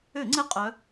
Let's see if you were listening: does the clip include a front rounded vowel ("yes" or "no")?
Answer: yes